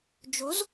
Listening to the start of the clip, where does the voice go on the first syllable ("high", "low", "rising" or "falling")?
rising